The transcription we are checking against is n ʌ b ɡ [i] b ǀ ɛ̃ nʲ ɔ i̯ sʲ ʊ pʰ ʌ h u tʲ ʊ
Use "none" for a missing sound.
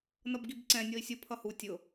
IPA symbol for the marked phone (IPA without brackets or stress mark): i